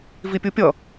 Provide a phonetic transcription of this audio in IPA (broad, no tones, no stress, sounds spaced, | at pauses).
v i pʲ u pʲ ʌ